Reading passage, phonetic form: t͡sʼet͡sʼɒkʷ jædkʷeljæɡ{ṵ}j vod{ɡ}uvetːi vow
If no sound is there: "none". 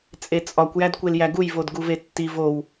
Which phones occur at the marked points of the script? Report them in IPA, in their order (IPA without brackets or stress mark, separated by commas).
u, ɡ